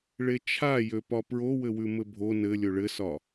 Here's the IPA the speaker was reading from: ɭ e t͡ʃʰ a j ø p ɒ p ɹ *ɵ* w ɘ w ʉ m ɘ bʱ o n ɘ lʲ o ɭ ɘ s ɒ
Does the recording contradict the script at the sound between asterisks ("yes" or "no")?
yes